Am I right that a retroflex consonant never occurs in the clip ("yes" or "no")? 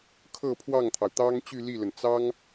yes